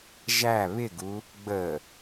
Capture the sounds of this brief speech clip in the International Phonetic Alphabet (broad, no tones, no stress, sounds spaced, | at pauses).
ʒ æ β ɪ ɡ u | ɡ͡b ə